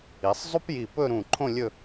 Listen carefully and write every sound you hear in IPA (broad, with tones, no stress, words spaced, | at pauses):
i˩˧sˤzˤu˥pji˧˩ pɵ˥˧ɾũ˧˩ǃʰõ˥˧ lʲɵ˥˧